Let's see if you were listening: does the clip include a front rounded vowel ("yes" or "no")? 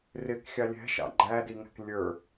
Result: no